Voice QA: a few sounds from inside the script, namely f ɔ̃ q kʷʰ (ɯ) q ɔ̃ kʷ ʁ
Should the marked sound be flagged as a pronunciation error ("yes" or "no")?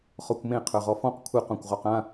no